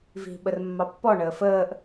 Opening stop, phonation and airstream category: implosive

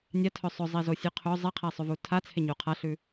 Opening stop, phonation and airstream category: aspirated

